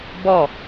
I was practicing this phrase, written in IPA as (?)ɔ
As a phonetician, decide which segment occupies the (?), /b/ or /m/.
b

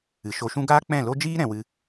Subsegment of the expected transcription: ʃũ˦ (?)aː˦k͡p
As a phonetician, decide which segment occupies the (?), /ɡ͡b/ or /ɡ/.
ɡ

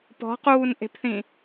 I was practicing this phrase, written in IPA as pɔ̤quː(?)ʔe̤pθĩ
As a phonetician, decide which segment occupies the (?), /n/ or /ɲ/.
n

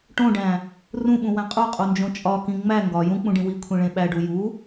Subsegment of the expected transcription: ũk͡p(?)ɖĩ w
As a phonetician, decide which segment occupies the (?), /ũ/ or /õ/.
ũ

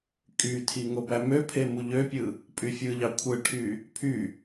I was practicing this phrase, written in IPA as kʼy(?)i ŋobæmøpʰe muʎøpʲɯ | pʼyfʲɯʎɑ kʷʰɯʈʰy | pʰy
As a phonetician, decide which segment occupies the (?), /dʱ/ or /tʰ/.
tʰ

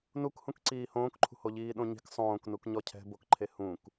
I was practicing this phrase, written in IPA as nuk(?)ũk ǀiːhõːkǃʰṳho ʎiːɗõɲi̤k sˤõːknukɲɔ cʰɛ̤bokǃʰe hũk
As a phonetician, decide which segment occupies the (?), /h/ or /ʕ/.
h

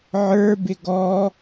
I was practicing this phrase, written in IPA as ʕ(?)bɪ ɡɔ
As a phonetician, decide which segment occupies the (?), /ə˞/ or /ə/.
ə˞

